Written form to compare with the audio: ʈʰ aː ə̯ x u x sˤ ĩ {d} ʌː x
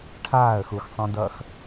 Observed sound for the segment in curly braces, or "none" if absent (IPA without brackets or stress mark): d